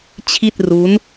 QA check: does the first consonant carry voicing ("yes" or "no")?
no